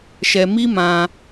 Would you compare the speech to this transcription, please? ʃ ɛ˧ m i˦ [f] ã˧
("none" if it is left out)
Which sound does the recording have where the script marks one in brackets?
m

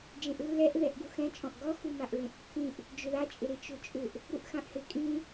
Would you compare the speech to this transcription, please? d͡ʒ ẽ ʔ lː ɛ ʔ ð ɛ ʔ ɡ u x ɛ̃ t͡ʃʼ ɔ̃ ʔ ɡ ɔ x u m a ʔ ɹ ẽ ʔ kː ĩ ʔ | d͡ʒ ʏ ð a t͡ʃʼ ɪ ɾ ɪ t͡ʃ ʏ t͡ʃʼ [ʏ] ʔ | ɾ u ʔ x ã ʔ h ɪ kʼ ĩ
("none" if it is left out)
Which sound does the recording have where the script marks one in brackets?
ʏ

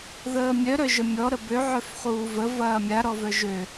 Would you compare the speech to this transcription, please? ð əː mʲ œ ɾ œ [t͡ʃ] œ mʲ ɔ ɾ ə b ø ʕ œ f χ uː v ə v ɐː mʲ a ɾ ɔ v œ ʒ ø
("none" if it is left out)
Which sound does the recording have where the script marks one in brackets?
ʒ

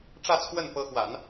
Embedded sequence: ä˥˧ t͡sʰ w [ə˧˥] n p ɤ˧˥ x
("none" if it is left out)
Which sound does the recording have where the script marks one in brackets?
ə˥˩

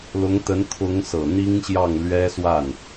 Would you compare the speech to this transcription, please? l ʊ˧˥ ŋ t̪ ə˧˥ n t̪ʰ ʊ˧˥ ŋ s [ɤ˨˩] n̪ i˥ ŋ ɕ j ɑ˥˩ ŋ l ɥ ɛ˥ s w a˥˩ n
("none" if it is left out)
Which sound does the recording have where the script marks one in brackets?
ɤ˨˩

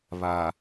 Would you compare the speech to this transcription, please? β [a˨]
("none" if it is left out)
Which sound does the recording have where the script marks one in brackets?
a˨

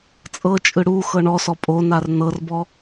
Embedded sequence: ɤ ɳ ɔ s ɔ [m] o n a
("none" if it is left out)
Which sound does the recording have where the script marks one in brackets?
pʼ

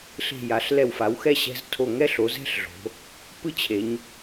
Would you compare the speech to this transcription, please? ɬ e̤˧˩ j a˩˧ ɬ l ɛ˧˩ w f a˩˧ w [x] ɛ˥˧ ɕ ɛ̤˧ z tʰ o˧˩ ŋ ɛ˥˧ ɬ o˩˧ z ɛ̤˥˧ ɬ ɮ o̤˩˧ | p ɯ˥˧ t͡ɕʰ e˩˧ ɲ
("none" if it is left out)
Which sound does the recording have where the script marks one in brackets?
x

